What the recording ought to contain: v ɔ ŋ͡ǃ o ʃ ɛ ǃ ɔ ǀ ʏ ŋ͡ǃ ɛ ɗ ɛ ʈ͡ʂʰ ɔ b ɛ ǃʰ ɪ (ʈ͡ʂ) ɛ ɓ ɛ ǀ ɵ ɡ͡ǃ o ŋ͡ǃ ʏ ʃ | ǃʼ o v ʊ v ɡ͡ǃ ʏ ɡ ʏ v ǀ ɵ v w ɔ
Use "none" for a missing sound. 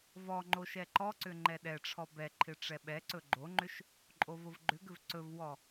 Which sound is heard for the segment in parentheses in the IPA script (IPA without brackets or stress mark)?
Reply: ʈ͡ʂ